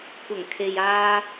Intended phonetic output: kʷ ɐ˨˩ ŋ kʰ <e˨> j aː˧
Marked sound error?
no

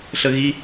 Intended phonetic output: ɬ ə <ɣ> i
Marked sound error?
no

